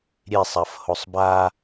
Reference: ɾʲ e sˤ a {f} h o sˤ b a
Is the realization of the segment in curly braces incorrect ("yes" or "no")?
no